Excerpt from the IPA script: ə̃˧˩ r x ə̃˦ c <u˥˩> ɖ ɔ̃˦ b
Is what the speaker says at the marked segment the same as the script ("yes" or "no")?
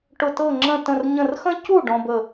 yes